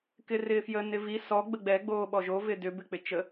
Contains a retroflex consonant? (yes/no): no